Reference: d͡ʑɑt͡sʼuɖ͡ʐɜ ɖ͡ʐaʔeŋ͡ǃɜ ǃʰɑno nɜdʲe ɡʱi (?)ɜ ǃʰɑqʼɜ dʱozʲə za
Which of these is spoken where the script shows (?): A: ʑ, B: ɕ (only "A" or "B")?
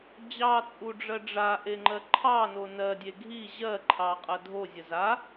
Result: A